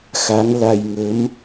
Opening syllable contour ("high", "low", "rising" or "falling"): rising